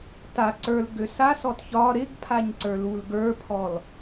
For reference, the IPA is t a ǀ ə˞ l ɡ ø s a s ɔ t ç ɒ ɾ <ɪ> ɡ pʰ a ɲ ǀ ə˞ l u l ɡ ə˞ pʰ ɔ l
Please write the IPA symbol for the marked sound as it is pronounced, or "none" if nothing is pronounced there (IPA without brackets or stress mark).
ɪ